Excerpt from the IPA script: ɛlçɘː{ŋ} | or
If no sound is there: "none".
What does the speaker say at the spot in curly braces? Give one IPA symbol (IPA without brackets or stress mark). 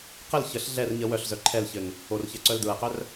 ŋ